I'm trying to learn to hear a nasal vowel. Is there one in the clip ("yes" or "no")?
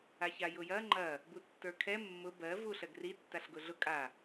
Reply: no